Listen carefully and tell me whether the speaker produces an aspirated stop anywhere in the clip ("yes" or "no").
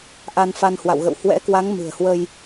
no